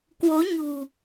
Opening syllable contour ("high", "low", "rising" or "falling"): rising